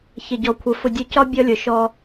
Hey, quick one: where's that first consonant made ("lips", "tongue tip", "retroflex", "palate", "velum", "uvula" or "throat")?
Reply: palate